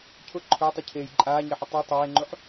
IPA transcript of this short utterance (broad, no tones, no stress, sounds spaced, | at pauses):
cʰ ʊ ǃʰ ʊː tˤ i cʰ eː j ǃʼ aː ɲ e ħ ɪ tˤ u tˤ eː ŋ͡ǃ u ħ